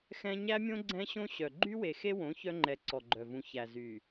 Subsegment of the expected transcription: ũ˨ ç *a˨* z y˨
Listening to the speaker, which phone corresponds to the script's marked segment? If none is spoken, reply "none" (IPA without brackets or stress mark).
æ˨